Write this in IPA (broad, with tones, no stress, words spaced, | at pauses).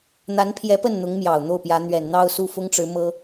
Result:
n̪a˧˥npʰjɛ˧˥pə˥˩nn̪ʊ˧˥ŋ mjɑ˨˩ʊ̯n̪o˥˩ʊ̯pjä˧˥ n̪ɥɛ˨˩n n̪ɑ˥˧ʊ̯su˥˩fʊ˥ŋʈ͡ʂɻ̩˧˥ mɤ˥